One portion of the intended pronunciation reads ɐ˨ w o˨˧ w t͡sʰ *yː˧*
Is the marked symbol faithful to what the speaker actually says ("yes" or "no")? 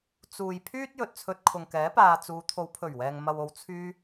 yes